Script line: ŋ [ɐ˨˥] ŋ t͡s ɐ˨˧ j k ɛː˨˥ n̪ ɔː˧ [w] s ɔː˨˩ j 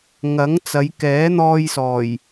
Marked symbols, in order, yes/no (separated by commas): yes, no